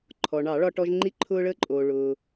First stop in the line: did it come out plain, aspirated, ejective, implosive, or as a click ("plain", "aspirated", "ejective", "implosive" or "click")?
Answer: click